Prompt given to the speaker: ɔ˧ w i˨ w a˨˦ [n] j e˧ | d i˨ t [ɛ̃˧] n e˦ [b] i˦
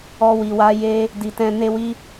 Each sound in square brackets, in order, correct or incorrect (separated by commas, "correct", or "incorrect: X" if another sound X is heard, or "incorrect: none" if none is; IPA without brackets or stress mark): incorrect: none, correct, incorrect: w